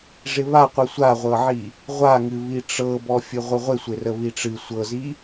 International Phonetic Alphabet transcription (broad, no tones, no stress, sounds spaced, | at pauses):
ʐ ɪ β a qʷ ɨ sʷ a ʁʷ ɤ ʕ i | ʁʷ a ŋ ɨ β i ʈ͡ʂ ɤ b ɔ fʲ ɨ ʁʷ ɨ ʁʷ ɪ sʷ ɪ r ə β i ʈ͡ʂ ɨ sʷ ɤ z i